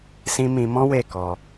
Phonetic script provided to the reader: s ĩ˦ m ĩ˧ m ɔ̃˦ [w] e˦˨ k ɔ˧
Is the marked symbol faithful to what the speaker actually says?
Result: yes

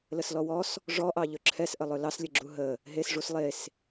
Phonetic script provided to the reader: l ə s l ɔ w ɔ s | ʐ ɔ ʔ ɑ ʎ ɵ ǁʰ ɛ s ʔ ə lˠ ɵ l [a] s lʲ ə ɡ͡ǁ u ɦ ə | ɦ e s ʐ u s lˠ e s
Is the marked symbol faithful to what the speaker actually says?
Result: no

